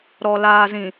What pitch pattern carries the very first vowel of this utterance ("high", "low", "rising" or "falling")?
low